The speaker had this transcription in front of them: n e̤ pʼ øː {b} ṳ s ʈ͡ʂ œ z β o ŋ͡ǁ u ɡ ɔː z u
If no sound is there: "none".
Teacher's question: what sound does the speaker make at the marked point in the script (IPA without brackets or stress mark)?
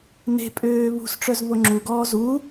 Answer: β